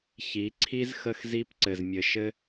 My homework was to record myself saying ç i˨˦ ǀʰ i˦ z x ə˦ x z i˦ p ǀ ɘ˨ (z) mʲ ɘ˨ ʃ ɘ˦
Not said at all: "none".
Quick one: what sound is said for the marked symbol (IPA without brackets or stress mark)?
z